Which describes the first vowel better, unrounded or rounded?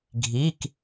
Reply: unrounded